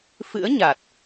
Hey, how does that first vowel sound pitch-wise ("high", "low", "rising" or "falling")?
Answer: rising